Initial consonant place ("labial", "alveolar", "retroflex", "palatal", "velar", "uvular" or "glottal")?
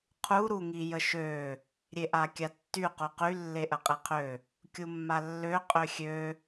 uvular